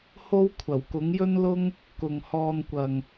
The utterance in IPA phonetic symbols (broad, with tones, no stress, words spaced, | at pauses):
ho˥wkʷʰɐ˨˩w kʊ˨˥ŋjɵ˥nlʊ˥ŋ | kʊ˨ŋhɔː˧nkʷɐ˨ŋ